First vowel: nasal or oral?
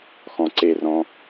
nasal